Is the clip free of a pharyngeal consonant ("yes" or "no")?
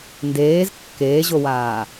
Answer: yes